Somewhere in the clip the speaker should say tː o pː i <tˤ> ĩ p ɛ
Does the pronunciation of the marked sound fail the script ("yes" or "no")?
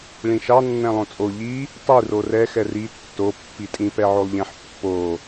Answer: yes